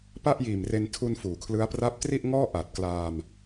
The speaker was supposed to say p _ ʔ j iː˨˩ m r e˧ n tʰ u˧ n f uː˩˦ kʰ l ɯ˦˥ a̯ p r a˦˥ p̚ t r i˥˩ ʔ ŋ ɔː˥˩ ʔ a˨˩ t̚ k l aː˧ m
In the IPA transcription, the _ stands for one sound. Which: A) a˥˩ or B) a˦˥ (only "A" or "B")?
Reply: A